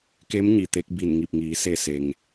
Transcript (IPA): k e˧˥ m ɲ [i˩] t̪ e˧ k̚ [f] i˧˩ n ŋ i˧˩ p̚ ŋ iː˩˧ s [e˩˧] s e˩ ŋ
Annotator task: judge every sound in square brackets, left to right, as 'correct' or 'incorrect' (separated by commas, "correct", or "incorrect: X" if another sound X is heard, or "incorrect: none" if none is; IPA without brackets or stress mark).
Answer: correct, incorrect: b, incorrect: e˧˩